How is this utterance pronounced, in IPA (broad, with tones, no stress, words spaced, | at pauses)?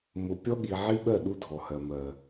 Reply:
mʊ˨ pʲɔ˦ɠi˨ ʕi˦ɓɜ˦˨ ɗu˦dʱɔ˨hɜ˨ mɜ˨